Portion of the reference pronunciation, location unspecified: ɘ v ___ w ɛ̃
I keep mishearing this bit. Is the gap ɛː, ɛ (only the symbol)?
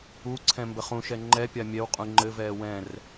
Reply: ɛː